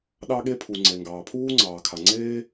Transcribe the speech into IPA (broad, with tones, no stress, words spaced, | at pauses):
ɗɑ˥ɠe˥pʰu˩ ŋ͡ǀe˩ŋɡɑː˩pʰuː˥ ŋ͡ǀɑː˩kʰa˩ŋ͡ǀeː˥